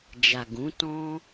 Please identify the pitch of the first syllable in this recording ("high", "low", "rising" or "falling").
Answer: low